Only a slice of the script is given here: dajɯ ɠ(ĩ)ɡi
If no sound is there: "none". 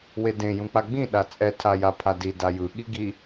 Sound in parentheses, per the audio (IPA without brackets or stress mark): i